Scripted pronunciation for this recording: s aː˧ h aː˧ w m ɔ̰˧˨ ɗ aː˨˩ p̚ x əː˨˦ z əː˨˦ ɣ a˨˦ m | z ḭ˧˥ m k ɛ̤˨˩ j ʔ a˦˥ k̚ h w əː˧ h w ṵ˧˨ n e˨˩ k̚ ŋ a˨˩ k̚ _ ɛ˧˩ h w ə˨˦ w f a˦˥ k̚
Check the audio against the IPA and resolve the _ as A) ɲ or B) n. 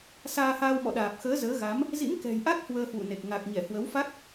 A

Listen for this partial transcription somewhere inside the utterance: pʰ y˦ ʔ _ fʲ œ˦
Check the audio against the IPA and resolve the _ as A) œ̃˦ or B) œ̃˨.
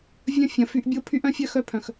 A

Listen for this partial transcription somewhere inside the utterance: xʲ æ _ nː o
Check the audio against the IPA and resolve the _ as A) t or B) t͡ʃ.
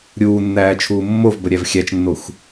B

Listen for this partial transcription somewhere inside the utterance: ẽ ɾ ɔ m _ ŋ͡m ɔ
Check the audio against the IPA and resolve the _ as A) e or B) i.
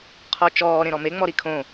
A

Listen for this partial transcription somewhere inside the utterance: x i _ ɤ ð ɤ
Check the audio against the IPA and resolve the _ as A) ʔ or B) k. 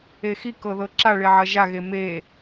B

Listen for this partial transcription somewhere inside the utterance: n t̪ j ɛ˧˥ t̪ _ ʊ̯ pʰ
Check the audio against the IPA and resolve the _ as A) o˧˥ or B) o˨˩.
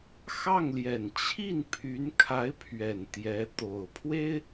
B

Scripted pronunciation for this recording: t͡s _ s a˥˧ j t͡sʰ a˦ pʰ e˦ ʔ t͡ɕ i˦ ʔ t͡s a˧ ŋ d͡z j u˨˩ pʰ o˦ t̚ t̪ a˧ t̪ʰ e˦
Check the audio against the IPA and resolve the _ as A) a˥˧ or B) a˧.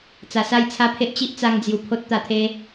B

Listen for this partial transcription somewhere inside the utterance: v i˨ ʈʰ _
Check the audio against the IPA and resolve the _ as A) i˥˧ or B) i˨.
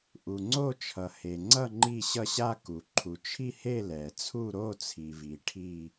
A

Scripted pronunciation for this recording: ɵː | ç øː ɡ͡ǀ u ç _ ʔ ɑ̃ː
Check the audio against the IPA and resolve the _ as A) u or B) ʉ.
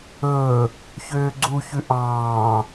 B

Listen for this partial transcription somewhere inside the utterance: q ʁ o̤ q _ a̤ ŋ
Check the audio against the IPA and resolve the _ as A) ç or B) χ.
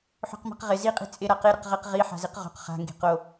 B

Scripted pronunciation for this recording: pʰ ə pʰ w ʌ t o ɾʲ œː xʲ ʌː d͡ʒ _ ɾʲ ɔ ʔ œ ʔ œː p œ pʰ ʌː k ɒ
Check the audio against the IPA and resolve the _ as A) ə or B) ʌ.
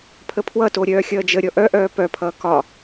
A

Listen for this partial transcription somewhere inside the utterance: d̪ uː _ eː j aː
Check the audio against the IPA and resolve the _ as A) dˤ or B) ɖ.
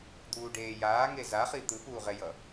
B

